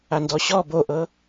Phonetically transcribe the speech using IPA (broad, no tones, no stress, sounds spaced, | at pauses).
a n d ɔ ɕ ɔ b o ʔ ɤ